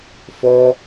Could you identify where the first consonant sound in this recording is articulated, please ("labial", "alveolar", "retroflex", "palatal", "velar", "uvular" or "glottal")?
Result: labial